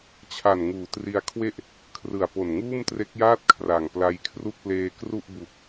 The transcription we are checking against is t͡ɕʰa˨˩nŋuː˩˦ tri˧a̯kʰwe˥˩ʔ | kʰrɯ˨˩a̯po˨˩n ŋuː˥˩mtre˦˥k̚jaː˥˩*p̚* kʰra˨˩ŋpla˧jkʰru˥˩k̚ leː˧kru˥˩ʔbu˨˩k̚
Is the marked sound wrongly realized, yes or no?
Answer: yes